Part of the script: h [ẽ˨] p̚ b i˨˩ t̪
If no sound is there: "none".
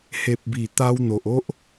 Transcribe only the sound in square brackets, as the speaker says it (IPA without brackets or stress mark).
e˨